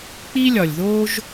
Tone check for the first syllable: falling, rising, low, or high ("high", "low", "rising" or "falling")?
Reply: high